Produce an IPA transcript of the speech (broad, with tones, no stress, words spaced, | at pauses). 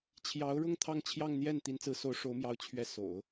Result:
t͡ɕʰjɑ˧˥ʊ̯ɻʊ˥˧ŋ t̪ʰɑ˥˧ŋt͡ɕʰjɑ˥˧ŋ n̪jɛ˥˩n t̪i˧˥nt͡sɹ̩˧˥so˧˥ʊ̯ ʂo˧˥ʊ̯mjɑ˧˥ʊ̯ t͡ɕʰɥɛ˧˥ so̰˨˩˦ʊ̯